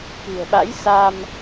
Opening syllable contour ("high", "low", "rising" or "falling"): low